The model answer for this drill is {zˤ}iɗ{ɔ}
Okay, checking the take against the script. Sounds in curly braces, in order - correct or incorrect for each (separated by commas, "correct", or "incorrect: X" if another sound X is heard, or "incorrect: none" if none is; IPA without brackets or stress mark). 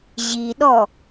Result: incorrect: ʑ, correct